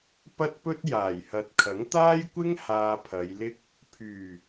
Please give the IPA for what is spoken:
p ɐ˥ t̚ p ɵ˥ t̚ j aː˨˩ j h ɐ˨ t̚ kʰ ɐ˨˥ ŋ t̪ aː˥ j kʷ ɪ˥ ŋ h aː˧ pʰ ɐ˨˧ j l ɪ˥ k̚ | pʰ yː˨˩

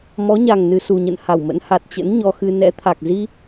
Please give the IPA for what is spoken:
m ɔ˨˦ ɲ a˨˩ ŋ n ɨ˨˩ s u˨˩ ɲ ə̰˧˨ n h a˧˩ w m ə̰˧˥ n h a˨˩ t̚ t͡ɕ ə̰˧˥ n ɲ ɔ˧ x ɨ˧ n ɛ̰˧˥ t̪ʰ a˨˩ k̚ z i˧

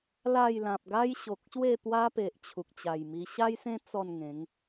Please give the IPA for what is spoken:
l a˥˧ j l ã˨ p̚ ɡ a˦ j ɕ o˨ k̚ ɕ w e˥˧ t̪ w a˦ p e˨ ʔ t͡ɕʰ u˨ k̚ t͡ɕ a˨˩ j m i˧ ɕ a˦ j s ẽ˦ t͡s ɔ˥˧ n ŋ ẽ˨˦ ŋ

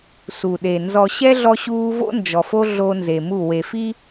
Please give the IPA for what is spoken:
s u˨ ɗ e˨ n z ɔ˨ ɕ ɛ˦ ɮ ɔ˦ ɕ uː˦ v o̰˦ n d͡ʒ ɔ˨ f o˦ ɮ o˦ n z e˨ m u˦˨ w e˨ f i˦

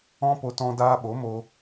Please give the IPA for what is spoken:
ɔ̃˦ p o˧ t ɔ̃˧ d aː˧ ɓ o˨˦ m o˧

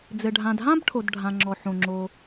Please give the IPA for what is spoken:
d͡z ɘ˩ ɖʱ ã˩ d ɦ ã˥ b ʈʰ o˩ d ɖʱ ã˩ ŋ͡ǁ ɔ˩ ħ õ˩ ŋ͡ǁ o˩

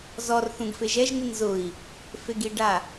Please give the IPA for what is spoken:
z ɔ r θ ũ ɡ f e ʒ ɛ ʒ n i n z ʊ i̯ | f e ɡ i ɖ a

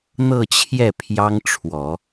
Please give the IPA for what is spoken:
n̪ ɤ˥˧ t͡ɕʰ j ɛ˥˩ pʰ j ɑ˥ ŋ ʈ͡ʂʰ w ɔ˨˩˦

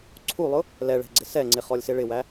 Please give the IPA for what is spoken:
ǀʰ u lˠ ʊ | l ɛ ɭ ɛ̤ ɡ͡ǀ ɪ s ɛ ŋ͡ǀ ɪ χ ɔ lʲ s ɪ ɭ ɪ w æ

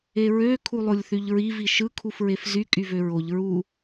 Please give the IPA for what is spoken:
e ɹ ø kʰ u lˠ o lʲ θ y ʎ ɹ i v i ʃ ɯ kʰ u f ɹ e f z y kʼ y v ø ɹ o ʎ ɹ u

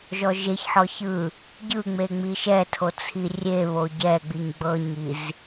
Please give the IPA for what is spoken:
ʒ ɔ ʒ e ç ħ ɔ ç ɯ | ɟ ɯ ŋ͡m e ŋ͡m i ʃ ɛ tʰ o t͡sʰ i rʲ e β o ɟ ɛ ɡ͡b i ɲ ɡ͡b ɤ ɲ i z

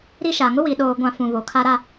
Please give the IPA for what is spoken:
ɾ i˦ ʃ a˨ ŋ ʊ˦ w i˨ ɗ oː˨ ɡʷ ã˨ f ũ˨ β o˨ kʰ a˦ ɾ a˦

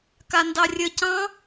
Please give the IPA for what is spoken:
k a n d ɑ rʲ ə c ɑ̃

